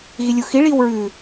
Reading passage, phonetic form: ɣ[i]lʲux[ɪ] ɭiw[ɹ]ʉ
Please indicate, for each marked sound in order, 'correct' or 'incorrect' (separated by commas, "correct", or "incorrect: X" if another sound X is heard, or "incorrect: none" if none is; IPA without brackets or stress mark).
correct, incorrect: i, correct